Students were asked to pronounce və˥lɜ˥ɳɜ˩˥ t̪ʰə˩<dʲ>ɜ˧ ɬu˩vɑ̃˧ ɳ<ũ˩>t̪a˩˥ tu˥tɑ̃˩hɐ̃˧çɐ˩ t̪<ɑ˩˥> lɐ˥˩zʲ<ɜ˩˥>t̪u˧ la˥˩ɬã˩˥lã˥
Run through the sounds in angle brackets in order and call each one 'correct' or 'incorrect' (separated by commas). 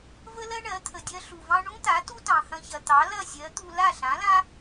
correct, incorrect, correct, correct